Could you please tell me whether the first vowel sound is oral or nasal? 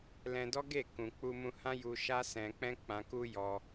nasal